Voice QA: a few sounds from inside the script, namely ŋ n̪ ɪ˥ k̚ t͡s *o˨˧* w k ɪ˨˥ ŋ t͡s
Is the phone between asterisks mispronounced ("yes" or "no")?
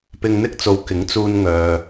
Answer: no